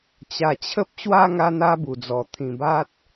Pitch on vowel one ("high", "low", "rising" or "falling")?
low